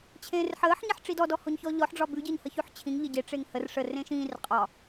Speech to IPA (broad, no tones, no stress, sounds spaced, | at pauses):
t͡ɕʰ ẽː r ħ əː ħ ɲ ɛ ħ ʈ͡ʂ i d ɔ d ɔ h o ɲ ç ɔ ʎ ɔ ħ ɖ͡ʐ ɒ b ʉ ɟ əː ɲ h ə ç ʉ ħ t͡ɕʰ ĩ ŋ ʎ ə ɟ e ʈ͡ʂ e ŋ h ə r ʂ ə r ẽ ʃ ĩː r qʼ ɒ